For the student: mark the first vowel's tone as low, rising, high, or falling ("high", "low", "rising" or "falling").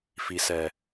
low